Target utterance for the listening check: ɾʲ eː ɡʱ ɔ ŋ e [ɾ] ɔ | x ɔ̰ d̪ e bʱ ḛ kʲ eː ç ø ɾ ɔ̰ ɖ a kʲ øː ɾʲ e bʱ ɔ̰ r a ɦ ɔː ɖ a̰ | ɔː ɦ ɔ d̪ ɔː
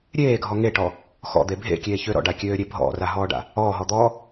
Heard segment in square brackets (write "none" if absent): ʈ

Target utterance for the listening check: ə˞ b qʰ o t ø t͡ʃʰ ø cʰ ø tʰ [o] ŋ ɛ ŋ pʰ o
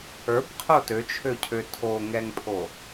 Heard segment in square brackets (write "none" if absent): o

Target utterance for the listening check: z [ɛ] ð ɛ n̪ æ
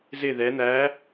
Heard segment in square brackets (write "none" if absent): ɪ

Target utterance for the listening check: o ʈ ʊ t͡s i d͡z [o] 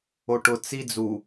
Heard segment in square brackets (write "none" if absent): u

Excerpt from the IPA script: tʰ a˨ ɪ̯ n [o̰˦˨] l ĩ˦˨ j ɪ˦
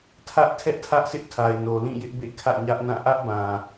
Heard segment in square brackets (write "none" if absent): o˨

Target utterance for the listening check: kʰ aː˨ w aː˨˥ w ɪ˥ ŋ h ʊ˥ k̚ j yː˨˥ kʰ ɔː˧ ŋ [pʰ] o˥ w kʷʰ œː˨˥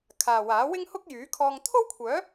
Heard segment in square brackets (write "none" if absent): t̪ʰ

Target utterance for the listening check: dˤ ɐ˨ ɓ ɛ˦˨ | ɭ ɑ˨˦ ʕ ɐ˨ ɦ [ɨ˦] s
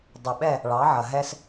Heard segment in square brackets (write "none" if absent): ɛ˦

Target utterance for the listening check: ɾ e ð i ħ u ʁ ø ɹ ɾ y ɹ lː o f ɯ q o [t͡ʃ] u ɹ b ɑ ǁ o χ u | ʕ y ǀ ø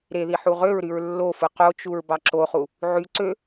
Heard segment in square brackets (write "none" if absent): t͡ʃ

